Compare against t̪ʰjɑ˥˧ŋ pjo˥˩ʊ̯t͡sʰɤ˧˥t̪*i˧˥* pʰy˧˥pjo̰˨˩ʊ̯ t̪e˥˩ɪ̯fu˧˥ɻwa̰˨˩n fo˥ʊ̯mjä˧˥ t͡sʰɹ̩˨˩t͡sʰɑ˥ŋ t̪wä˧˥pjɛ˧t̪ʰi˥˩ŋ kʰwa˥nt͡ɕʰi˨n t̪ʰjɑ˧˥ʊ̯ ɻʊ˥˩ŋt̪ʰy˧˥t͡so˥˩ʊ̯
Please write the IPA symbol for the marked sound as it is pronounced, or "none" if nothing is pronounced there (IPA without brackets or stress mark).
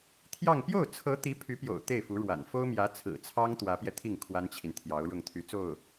i˧˥